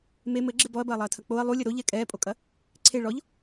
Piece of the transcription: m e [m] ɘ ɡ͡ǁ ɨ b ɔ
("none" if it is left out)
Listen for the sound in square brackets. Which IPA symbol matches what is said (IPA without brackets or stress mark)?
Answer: m